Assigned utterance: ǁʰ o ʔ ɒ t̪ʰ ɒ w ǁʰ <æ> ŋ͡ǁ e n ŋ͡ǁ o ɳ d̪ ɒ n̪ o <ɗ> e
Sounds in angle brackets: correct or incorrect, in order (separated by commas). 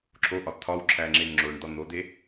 correct, incorrect